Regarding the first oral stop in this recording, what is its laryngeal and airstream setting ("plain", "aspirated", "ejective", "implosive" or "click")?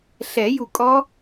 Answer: ejective